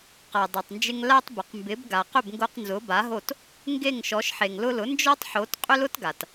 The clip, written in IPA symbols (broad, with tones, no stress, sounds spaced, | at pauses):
q a˩ dˤ a˩ tˤ n d͡ʒ ɪ˧ ŋ l a˧ tˤ b ʊ˩ q m b ɪ˩˥ b ɡ a˩ q ʏ˥˩ b ŋ ɡ o˧ q n z ʊ˩˥ b a˩˥ ɦ o˥˩ t | ŋ ɡ e˥˩ ŋ ʃ ɔ˩˥ ʃ ħ e˩ ŋ l ʊ˧ l ʊ˩˥ n d͡ʒ ɔ˥ tˤ ħ o˩˥ t qʼ ʏ˥ l ʊ˥ t ɡ a˩ t